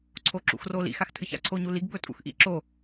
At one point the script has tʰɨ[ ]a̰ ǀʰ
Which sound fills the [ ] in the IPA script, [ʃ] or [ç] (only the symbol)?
ç